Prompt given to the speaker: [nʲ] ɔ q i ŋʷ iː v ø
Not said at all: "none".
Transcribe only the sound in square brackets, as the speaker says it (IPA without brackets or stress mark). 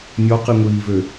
nʲ